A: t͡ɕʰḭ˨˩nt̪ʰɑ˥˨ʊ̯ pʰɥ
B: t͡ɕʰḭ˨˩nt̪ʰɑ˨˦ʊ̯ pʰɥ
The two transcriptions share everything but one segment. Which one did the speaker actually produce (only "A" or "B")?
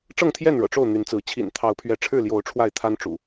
B